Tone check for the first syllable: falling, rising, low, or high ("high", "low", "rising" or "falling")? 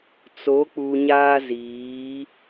rising